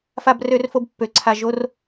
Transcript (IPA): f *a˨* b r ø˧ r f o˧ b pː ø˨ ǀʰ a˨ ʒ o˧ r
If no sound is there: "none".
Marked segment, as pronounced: a˨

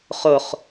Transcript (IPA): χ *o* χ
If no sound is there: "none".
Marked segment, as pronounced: o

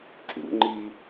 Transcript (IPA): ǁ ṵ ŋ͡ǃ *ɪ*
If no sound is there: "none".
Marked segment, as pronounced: i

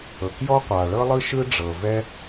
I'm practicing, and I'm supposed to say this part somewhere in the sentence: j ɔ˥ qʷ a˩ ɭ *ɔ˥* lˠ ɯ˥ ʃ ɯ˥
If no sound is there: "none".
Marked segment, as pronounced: ɤ˥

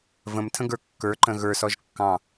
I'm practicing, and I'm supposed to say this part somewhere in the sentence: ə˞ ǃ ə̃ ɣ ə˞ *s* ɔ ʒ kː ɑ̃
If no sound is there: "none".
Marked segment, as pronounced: s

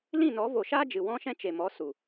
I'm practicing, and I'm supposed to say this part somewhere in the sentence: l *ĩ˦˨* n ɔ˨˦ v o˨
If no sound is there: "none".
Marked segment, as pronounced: ĩ˦˨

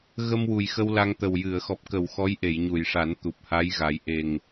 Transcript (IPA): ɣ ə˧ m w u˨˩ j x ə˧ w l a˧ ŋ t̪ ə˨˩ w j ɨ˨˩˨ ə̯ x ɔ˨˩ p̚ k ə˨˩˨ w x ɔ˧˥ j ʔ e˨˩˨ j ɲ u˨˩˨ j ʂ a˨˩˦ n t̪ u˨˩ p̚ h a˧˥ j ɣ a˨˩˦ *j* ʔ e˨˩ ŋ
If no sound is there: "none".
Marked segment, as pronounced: j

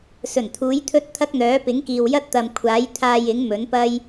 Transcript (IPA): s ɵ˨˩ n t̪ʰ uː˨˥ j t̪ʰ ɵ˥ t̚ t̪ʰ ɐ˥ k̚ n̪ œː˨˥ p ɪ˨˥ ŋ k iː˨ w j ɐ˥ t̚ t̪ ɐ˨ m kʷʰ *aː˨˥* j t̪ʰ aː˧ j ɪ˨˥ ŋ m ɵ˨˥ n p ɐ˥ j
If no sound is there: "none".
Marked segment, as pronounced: aː˨˥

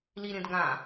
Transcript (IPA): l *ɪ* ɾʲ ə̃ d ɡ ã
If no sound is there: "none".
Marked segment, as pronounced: i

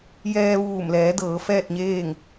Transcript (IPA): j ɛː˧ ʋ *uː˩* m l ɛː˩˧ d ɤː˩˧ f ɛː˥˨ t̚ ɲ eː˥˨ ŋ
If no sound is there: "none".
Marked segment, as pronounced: uː˧˩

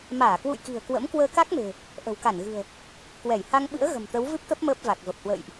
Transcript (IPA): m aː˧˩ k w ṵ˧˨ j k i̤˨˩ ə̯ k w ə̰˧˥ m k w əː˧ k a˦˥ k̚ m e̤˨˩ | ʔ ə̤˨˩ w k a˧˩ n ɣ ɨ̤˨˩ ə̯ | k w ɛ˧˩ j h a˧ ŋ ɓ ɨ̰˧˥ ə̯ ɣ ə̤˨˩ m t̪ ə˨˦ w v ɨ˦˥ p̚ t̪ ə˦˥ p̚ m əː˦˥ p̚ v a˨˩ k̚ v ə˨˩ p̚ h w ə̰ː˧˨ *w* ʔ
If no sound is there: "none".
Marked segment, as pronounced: j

